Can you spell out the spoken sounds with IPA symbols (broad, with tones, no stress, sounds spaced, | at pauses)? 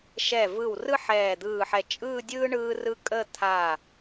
ʃ ɛ˧˩ v ɯ˧˩ w r ɯ˥ ħ ɛː˧˩ d̪ ɯː˧˩ ħ ɛ˧˩ t͡ʃʼ ɯː˥˧ dʲ ɯː˥ ɳ ɯː˧ r ɯ˧ kʼ ə˥˧ t̪ʰ a˧˩